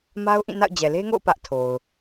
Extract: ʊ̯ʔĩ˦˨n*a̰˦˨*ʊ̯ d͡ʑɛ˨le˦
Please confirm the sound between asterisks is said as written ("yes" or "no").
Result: yes